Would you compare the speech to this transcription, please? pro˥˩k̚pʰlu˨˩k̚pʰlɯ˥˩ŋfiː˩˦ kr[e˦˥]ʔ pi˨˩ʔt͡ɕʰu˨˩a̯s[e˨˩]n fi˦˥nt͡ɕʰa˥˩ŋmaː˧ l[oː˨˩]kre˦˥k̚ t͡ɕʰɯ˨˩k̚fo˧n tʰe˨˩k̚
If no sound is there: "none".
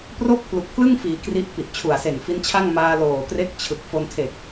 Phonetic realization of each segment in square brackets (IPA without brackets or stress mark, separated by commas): i˦˥, e˨˩, oː˨˩